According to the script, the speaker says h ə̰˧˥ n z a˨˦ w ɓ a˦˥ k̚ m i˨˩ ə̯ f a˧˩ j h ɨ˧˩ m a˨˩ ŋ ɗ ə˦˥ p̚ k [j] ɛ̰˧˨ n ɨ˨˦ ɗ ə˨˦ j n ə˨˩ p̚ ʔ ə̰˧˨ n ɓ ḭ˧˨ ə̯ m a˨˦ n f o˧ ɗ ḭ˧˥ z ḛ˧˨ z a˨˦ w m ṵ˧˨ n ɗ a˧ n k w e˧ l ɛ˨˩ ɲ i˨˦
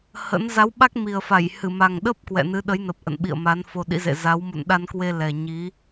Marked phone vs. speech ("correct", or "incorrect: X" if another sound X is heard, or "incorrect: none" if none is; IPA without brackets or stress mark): incorrect: w